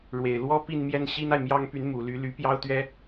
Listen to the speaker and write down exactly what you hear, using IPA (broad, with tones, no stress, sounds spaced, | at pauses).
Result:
ɻ w e˨˩ ɪ̯ l w ɔ˥ p i˥˧ n m j ɛ˥˩ n ɕ i˥ n a˨ ɪ̯ m j ɑ˥ ŋ p y˧˥ n m u˨˩ l y˧˥ l y˧˥ p j ɑ˥ ʊ̯ t̪ ɥ ɛ˥